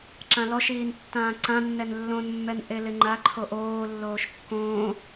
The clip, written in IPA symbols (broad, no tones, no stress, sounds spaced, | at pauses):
ǁ ã l ɔ ʃ iː n tː ãː ǀ ã nː ɛ n lː õ n mː ɛ n ʔ e l ɪ ŋ͡ǃ a ǃʰ o ʔ oː lː oː ʃ kː õː